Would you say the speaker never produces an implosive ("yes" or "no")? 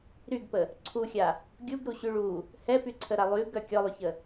yes